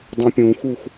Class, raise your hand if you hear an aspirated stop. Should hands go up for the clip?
no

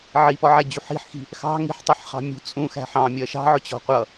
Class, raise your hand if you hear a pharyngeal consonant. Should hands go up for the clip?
yes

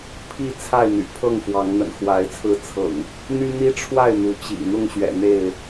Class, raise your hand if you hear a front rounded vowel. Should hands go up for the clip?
yes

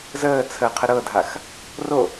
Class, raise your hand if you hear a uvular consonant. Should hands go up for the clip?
yes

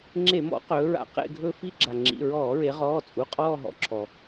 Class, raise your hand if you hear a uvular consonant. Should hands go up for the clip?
yes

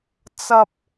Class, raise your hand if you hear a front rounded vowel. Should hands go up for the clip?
no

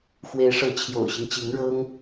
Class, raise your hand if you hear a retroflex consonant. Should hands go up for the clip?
yes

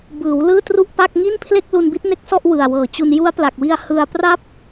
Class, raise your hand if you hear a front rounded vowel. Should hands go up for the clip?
no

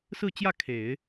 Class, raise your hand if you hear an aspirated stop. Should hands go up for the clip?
yes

